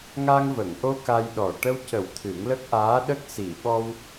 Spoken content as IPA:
ŋ a˧ ŋ v ə˨˩˨ ŋ ʔ o˧ k a˧ j ɗ ɔ˨˩ ʈ ə˧ w c ə˨˩˦ w t̪ʰ ɨ˨˩˦ ŋ l ə˦˥ k̚ ʔ aː˧˥ ɗ ə˦˥ k̚ s i˨˩˨ ɓ ɔ˧ w

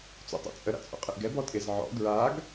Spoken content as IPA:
t͡s o̰ tˤ o̰ t͡sʼ ə ɾ a̰ t͡sʼ o̰ qʼ ɪ ʔ ɡ ɛ b ɔ tʼ ɪ z ʕ ɔ̰ ɡ ɹ a ɡ

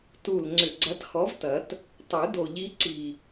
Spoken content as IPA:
t u˨˩ l ŋ͡ǀ ʏ˨˩ ɡ͡ǀ ɐ˨˥ t x ɔ˨˥ v t ɐ˨˩˦ t | tˤ ʉ˨˩˦ d o˨˩ ʎ i˨˥ ǀ i˨˩

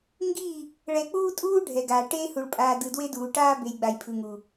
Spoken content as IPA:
ŋ ɡ i˦˨ | ɭ ɛ˨ k͡p uː˦ tʼ uː˦ ɖʱ ɛ˨ ɡ aː˨ ʈ eː˦ h u˨ ɭ pʼ aː˨ d ɯ˨ d w e˦ d uː˨ ʈ aː˦ b e˨ j ɡ͡b a˨ j pʰ ɯ˨ ŋ u˨

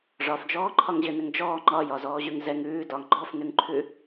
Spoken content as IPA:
ʐ ɒ f d͡ʒ ɔː ǃʰ ɒ ŋ ʑ ɘ n ɘ ŋ d͡ʒ ɔː ŋ͡ǃ ɒ j ɒ z ɔː ʑ ʉ ŋ z ɛ ŋ ʉː d ɒ ŋ ɡ͡ǃ ɔ f n ʉ ŋ ǃʰ ʉ

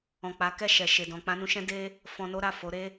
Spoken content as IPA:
ɔ̃˨ k͡p a˨˦ k ɛ˦˨ ʃ ɛ˨ ʃ e˨ d ɔ̃˨ k͡p ã˧ n ũ˧ ʃ ɛ̃˦ d e˦ | f ɔ̃˧ n o˦ ɾ a˦˨ f o˨˦ ɾ e˦

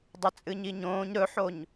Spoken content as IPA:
dˤ ɐ t͡sʼ ɨ ɲ i ɲ õː ɲ ɾ ɵ ħ o ɲ

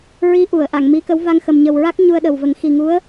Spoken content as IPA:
ɹ i˧˥ ʔ u˨˩˨ ə̯ ʔ a˨˩˨ ŋ m i˧˥ k ə˧˥ w v a˧ ŋ x ə˨˩ m ɲ ə˨˩ w ɹ a˦˥ k̚ ɲ u˧ ə̯ ɗ ə˨˩ w v ə˨˩˦ ŋ x i˨˩ ŋ u˧˥ ə̯

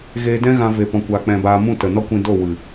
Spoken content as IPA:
ɣ eː˧ d ɛ̃˦ ɣ ã˧ v e˧ p ɔ̃˧ kʷ aː˧ k͡p ɛ̃˧ b aː˧ m ũ˦˨ t ə˨ n ɔ˦ kʷ ĩ˧ d o˦˨ w ɨ˨

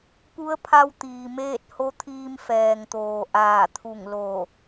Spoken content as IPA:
p u˧˥ ə̯ pʰ a˧ w t̪ iː˩ m eː˥˨ t̚ h o˧˥ t̪ʰ iː˧ m f ɛː˩ ŋ t̪ oː˩ ʔ aː˧˩ t̪ʰ u˧˩ ŋ l o˧˩

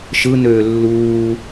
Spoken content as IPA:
ʃ ɯ n øː lː uː

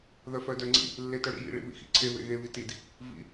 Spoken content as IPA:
ð œ f œ d œ ŋ͡ǀ ḭ | lː e t œ ɽ ḭ j ḭ ɭ ḭ β ḭ x ḭ ǀʰ e β ḛ ɣ e β i t i d | v ḭ

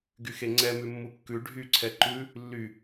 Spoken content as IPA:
ɡ y x e ŋ͡ǀ ɛ m ʉ mː u kː ʉ ɖʱ y ǀʰ ɛ ǃ ʉ | lː y

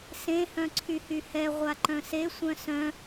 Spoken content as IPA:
s ẽ h œ̃ ǀʰ y h y h ɛ ʁʷ a ǃ œ̃ s e sʷ œ̃ s œ̃

